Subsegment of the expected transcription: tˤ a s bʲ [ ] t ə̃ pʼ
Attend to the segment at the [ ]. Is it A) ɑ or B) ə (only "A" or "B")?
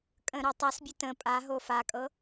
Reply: B